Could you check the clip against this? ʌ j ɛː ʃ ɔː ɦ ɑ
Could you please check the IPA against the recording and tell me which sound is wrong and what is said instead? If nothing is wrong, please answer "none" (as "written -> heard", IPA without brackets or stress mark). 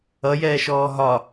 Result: ɑ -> ɒ